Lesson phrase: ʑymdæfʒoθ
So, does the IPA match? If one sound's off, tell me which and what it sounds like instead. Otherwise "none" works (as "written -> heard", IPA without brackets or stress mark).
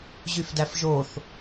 m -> f